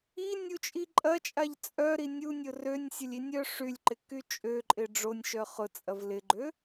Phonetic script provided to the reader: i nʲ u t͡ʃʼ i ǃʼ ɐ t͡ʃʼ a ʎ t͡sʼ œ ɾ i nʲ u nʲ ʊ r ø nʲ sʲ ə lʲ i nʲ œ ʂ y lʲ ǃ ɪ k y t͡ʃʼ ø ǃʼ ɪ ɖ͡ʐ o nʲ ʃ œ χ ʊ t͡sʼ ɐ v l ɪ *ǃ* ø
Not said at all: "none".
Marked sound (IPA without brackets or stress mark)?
ɡ͡ǃ